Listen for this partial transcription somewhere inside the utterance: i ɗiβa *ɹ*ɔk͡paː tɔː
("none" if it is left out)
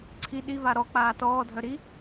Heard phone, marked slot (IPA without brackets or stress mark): ɾ